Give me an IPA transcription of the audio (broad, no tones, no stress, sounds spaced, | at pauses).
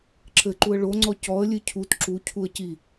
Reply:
ǁ ɘ ǃ u ə̯ ɭ o ŋ͡ǀ ɔ c ɔ ə̯ lʲ ɨ cʰ u t ǁ u cʰ u ə̯ c i